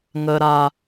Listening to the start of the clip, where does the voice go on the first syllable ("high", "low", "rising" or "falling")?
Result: low